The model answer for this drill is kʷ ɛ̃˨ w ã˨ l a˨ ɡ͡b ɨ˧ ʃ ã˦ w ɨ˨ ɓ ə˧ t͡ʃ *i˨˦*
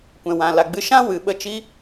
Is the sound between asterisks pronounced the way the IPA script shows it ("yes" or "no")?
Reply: no